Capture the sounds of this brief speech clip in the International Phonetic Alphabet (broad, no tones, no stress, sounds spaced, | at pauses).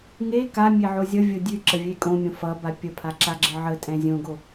ŋ e k a mʲ e ʕ o zʲ ʌ vʲ o dʲ ʉ ǁ ə vʲ e kʼ õ mʲ õ f ʌ b a pʲ ə pʰ a ǁ a ɡ͡ǁ ə ʕ ə tʼ ɛ̃ zʲ õ ɡ o